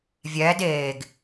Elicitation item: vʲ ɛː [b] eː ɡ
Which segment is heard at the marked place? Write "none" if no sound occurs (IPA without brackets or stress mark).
d